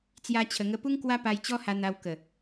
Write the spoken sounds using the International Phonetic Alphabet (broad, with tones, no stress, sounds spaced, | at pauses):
t͡s j a˧ t͡ɕʰ ə˨˩ ŋ ə˧ p u˦ ŋ k w a˦ p a˧ j t͡ɕ ɔ˦ h a˧ n̪ a˧ w k ə˨˩